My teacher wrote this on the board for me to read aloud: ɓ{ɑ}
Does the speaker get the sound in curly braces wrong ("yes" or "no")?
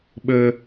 yes